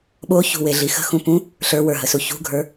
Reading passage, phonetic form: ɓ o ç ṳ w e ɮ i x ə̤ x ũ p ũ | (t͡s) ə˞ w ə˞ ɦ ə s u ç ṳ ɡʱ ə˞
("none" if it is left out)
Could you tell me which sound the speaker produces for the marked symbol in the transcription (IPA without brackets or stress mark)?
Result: ɬ